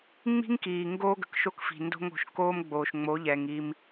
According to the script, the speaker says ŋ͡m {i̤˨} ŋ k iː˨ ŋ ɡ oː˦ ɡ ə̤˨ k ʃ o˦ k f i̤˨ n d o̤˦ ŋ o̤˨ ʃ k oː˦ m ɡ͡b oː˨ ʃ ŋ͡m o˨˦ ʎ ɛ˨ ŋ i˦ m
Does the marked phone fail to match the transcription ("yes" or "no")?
yes